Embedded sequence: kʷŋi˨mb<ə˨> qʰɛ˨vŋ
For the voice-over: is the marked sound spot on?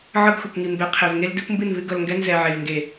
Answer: no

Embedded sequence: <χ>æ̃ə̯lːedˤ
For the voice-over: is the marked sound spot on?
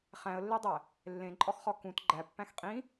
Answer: yes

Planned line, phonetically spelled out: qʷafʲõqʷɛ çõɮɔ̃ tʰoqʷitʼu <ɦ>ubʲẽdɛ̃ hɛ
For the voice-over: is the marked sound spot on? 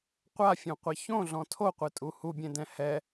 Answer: no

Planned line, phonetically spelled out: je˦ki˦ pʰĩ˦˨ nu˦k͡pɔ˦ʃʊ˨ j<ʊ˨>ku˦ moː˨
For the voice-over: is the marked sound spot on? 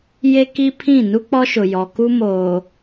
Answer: no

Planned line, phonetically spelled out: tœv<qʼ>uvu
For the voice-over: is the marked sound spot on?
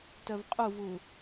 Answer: yes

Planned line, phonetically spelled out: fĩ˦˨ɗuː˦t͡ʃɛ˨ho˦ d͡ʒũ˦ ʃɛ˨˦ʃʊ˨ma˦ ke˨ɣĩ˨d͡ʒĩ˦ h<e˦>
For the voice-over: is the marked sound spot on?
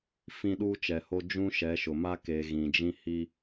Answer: no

